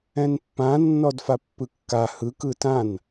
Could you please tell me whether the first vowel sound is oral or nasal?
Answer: nasal